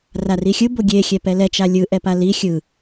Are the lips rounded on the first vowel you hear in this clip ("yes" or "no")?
no